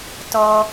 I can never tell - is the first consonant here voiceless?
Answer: yes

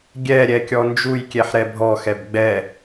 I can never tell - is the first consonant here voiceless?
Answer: no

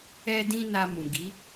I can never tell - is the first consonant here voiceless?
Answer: no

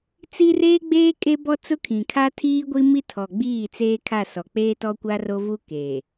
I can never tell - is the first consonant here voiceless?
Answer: yes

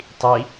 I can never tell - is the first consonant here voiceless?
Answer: yes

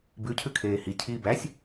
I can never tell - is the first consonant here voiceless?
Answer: no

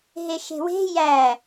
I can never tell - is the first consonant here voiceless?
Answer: no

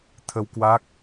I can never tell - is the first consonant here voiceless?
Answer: yes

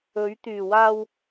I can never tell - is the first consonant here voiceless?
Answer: no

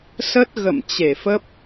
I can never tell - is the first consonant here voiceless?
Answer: yes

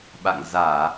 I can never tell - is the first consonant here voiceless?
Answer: no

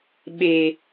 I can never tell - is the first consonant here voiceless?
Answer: no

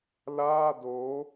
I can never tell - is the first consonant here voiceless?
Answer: no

